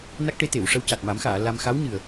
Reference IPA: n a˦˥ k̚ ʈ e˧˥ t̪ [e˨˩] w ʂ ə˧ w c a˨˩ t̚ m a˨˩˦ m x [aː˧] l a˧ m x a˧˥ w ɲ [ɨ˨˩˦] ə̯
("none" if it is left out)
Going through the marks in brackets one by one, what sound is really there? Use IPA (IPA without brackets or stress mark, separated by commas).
e˨˩˨, aː˨˩˨, ɨ˨˩